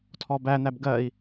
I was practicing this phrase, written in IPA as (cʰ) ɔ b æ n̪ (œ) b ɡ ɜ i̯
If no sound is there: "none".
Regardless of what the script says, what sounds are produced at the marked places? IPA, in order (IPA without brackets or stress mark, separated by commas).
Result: tʰ, æ